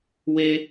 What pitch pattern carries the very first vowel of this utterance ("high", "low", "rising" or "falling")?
high